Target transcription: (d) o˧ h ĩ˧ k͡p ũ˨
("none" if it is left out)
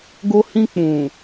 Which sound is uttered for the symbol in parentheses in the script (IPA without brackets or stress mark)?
ɡ